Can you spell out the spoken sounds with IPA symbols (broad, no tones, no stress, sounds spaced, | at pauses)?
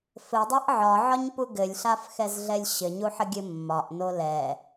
f ɘ dˤ ɛ ʔ ʕ ɒ ʕ ɒ ɲ p u ɡ ɘ lʲ ɬ a f x ɛ z ɮ ɛ lʲ ɕ ɘ ɲ u ħ ə ɡʲ ɘ mː ɒ ʔ n o l ɛ